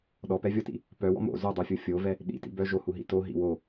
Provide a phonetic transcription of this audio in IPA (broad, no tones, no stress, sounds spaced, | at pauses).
ɗ ɔ p ɛ vʲ ɔ t ḭ | p œ w ɔ̰ m o̰ z o dˤ u fʲ o fʲ o v ɛ | ɗ ḭ t ḭ b œ ʒ o h u ɦ ḭ t o ɦ ḭ w o